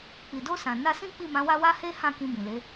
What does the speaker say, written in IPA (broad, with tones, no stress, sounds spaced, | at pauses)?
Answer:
k͡p i˨ d o˧ s ã˨ n a˧ s ĩ˦ k͡p i˦˨ m ã˨˦ w a˦ w a˦ h e˦ h ã˦˨ k ĩ˧ b ĩ˨ l e˨˦